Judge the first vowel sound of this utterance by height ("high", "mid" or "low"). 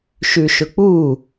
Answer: high